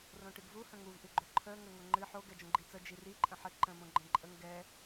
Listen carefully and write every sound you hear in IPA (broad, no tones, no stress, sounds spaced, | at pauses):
r õ ʈ ɨ ɡ v u h ə̃ ŋ u v ʔ ɨ ɡ͡ǃ o ǃʰ ə ŋ ə ŋ o ŋ͡ǃ ɨ ħ o ɡ ɛ d͡ʒ õ ɡ͡ǃ i t͡s ə d͡ʒ i r i ǃʼ ə̃ ħ ə ǃ ə̃ m õ ɡ͡ǃ ə̃ ǃʼ ə ŋ ɡ ɛ